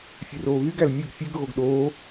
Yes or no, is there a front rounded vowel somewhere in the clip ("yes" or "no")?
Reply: yes